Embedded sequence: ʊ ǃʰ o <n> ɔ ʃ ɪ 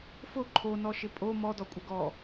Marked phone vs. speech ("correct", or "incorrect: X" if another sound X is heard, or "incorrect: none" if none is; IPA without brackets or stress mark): correct